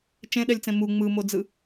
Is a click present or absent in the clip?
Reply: absent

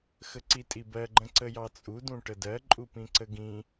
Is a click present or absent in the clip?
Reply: present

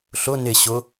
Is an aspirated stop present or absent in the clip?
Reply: absent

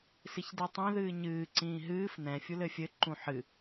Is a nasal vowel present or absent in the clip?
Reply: present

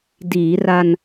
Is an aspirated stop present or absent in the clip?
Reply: absent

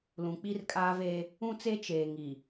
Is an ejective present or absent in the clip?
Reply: present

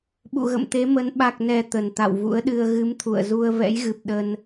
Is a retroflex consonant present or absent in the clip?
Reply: absent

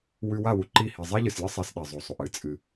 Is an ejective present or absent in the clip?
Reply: present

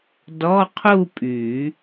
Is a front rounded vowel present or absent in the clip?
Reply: present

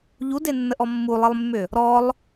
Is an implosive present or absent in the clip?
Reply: absent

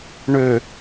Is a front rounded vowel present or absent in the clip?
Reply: present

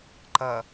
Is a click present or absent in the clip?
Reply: present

